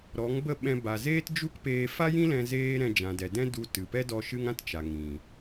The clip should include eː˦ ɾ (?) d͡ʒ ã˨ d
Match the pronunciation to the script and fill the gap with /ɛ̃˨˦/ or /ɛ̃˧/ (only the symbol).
ɛ̃˧